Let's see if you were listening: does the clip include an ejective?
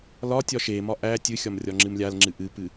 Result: no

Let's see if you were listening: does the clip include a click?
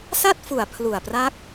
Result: no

